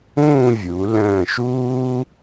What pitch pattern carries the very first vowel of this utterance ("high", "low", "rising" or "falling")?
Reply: falling